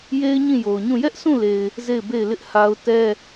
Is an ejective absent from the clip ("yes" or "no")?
yes